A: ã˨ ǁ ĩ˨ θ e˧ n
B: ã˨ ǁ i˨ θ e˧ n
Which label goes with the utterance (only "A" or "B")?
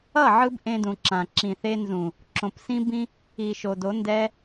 A